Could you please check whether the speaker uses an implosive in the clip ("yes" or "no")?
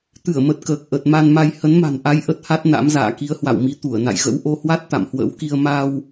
no